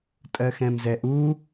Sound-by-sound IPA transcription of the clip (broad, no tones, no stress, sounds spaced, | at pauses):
tʼ ɜ x ɛ̃ m z ɛ ʔ u